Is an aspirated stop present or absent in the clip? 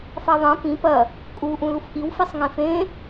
absent